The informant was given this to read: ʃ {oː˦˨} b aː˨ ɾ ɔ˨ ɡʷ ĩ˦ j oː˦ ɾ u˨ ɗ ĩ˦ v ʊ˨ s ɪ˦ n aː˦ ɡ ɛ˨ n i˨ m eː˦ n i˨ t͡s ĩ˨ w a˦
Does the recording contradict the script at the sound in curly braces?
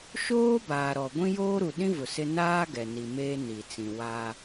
yes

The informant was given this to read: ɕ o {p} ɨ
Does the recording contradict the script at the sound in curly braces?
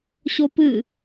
no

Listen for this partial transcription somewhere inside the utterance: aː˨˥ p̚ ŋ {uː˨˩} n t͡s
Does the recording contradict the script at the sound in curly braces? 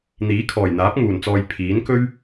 no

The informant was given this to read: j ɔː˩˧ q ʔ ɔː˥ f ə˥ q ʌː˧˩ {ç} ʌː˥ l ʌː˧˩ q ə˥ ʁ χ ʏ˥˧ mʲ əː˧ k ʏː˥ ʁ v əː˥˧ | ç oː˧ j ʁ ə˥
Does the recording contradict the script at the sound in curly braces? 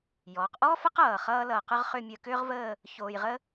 yes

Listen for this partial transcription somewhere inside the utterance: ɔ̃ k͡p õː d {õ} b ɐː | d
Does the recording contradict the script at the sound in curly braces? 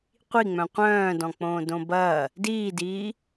no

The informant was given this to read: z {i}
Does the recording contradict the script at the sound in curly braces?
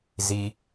no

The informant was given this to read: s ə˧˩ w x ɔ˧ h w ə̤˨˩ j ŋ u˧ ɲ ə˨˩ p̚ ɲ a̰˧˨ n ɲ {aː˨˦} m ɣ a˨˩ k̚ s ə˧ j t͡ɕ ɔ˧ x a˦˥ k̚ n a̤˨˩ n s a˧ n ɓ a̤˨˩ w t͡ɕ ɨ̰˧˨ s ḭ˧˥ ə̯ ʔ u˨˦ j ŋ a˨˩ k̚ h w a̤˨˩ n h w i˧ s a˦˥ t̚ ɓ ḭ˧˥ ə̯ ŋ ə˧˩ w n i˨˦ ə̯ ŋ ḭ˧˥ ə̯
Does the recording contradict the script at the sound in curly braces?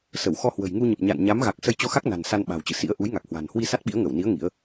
yes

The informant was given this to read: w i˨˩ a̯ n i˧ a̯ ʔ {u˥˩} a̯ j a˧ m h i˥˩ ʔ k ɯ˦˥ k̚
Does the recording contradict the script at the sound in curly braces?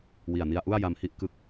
no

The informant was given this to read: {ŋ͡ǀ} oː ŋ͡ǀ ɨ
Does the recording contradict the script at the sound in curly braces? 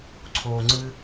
yes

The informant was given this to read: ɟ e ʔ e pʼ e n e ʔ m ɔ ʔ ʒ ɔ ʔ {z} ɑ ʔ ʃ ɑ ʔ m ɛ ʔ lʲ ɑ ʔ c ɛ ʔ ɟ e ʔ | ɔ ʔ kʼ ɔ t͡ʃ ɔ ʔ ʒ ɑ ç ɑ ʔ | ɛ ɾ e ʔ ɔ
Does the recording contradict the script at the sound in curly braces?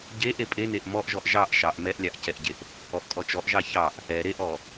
yes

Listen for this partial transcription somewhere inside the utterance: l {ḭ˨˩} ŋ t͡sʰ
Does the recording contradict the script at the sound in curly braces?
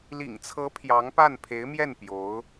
no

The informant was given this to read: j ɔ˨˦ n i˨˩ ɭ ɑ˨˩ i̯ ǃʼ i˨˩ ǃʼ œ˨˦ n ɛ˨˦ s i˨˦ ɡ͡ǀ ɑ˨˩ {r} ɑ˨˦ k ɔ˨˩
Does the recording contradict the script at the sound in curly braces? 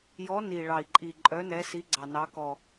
yes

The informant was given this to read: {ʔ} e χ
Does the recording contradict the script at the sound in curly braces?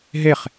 yes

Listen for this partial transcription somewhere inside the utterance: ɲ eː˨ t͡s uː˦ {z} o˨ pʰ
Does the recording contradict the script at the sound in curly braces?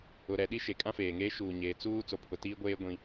yes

